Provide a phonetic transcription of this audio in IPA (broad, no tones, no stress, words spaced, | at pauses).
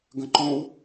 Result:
ɡə̃ǃõw